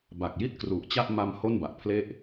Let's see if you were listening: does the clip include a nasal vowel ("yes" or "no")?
no